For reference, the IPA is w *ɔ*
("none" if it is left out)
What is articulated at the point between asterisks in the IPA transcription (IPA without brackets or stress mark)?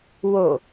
o